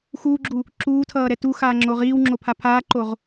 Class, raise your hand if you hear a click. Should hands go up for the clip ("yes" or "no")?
yes